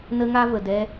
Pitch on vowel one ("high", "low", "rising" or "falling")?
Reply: high